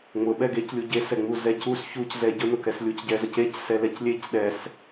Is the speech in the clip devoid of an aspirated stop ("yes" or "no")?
yes